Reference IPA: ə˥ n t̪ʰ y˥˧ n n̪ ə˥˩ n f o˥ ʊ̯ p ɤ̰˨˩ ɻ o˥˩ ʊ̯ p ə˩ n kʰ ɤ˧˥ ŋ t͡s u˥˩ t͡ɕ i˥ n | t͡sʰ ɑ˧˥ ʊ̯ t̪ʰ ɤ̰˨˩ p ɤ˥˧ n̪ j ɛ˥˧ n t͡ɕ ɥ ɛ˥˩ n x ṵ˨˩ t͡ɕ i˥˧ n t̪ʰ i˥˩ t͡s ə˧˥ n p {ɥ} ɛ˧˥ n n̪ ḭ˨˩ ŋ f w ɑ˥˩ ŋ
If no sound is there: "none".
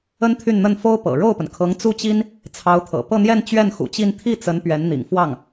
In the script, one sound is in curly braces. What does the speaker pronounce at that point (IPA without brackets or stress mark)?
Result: ɥ